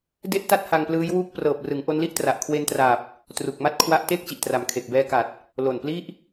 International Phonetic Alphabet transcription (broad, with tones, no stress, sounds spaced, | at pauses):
d e˥˩ ʔ t a˥˩ t̚ h a˧ ŋ p l ɯː˦˥ j w uː˥˩ k̚ p r ɤː˨˩ p̚ r ɯ˩˦ ŋ ʔ o˦˥ n l i˥˩ ʔ t r a˨˩ ʔ kʰ w e˧ n t r aː˨˩ p̚ | t r u˨˩ k̚ m a˥˩ t̚ kʰ w a˦˥ ʔ t eː˥˩ k̚ t͡ɕ i˨˩ ʔ t r a˨˩ m kʰ e˨˩ k̚ b ɛː˧ k a˨˩ t̚ | l o˨˩ n p l i˥˩ ʔ